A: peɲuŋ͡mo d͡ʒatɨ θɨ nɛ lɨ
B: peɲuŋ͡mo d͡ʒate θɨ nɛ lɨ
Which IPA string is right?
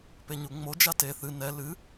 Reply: B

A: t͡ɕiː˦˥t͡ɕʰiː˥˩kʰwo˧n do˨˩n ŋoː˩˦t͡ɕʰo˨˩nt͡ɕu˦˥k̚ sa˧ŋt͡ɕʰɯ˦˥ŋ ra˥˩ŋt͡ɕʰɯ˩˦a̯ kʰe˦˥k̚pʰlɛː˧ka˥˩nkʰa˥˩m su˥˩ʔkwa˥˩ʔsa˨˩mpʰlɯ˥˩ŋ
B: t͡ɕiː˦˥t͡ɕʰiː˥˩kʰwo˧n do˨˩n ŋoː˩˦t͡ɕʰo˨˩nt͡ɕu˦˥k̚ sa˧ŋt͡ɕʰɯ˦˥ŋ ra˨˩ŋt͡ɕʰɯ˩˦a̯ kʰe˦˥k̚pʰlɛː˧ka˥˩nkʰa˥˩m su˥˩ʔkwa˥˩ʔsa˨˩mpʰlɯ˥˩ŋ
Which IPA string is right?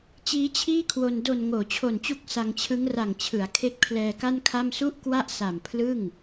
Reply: B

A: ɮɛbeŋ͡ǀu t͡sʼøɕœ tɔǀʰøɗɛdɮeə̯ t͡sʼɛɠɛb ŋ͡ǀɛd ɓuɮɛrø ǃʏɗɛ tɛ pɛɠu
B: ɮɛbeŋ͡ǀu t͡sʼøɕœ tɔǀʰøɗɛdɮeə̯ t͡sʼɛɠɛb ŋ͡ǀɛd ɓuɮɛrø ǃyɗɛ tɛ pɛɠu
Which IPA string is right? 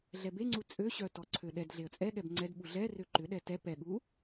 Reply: A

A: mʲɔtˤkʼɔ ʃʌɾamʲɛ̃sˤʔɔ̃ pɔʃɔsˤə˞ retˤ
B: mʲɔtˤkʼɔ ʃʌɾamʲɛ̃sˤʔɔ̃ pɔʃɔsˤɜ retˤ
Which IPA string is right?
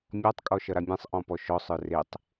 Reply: A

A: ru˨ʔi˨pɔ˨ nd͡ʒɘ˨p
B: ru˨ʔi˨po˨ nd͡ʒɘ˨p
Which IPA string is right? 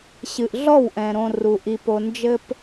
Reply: B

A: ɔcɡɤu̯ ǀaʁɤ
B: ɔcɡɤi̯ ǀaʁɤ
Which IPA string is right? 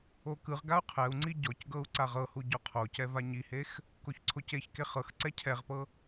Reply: A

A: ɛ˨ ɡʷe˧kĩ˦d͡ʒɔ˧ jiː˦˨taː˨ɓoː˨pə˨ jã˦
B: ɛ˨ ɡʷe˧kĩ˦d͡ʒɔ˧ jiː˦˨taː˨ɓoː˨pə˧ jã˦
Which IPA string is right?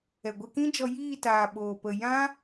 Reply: A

